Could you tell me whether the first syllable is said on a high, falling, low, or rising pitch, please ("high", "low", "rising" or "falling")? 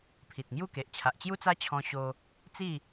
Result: low